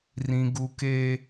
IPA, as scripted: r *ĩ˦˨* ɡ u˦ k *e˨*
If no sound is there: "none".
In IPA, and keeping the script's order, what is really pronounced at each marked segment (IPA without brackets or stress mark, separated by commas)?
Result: ĩ˦, e˦